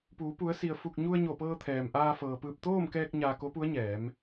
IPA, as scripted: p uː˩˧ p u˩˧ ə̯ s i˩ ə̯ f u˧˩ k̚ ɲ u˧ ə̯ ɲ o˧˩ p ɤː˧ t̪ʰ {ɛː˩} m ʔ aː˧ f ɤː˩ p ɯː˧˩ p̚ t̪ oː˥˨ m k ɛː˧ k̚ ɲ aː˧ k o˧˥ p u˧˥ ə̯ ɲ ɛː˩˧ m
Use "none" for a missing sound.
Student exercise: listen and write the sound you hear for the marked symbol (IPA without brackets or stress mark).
ɛː˩